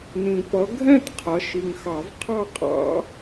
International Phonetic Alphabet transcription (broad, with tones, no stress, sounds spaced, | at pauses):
n ĩ˨ p ʌ˨˦ ɡʱ ɛ̃˥˧ t qʰ ʌ˨˦ ʃ i˨ ŋ x ɑ˨˩˦ v qʰ ɑ˥˧ qʼ ɑ̰˦˥